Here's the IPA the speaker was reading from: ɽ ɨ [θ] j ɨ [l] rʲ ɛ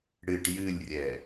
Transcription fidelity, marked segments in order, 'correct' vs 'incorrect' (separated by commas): incorrect, incorrect